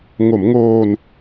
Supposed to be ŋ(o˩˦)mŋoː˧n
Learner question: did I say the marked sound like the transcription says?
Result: yes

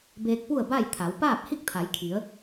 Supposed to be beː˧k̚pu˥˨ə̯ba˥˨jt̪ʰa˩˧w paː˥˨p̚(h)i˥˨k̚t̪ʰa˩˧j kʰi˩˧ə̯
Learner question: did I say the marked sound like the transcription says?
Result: yes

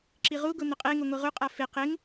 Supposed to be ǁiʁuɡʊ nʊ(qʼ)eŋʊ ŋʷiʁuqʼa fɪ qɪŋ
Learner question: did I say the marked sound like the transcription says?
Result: yes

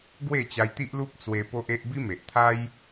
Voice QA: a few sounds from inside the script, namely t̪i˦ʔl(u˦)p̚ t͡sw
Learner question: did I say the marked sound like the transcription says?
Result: yes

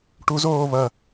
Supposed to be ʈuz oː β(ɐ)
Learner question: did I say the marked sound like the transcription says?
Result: yes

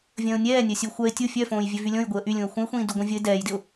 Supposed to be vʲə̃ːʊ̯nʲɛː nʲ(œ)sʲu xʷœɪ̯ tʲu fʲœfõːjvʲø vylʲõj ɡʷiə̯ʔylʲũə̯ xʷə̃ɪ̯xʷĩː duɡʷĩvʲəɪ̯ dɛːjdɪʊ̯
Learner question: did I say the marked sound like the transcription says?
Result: yes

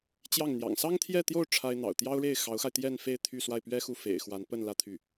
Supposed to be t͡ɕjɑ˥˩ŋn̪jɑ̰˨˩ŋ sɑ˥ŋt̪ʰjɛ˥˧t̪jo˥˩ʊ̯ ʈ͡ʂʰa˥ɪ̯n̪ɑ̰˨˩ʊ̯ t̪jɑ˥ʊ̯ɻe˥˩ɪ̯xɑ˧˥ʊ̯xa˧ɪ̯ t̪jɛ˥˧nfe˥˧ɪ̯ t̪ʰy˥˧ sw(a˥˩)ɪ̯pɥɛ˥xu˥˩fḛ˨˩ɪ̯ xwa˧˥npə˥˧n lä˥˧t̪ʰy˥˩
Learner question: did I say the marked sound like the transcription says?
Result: yes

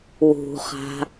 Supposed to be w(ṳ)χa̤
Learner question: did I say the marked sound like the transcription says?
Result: yes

